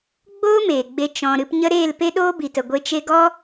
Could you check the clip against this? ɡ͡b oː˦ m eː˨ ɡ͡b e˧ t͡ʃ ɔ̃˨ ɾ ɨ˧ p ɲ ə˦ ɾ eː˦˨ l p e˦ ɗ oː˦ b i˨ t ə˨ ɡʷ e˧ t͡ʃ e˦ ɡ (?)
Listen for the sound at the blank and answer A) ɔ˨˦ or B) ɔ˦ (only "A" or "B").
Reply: B